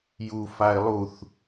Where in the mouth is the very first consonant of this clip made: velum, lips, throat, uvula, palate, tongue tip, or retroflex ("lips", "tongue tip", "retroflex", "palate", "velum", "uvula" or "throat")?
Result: palate